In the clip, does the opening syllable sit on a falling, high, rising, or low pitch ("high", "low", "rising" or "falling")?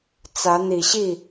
rising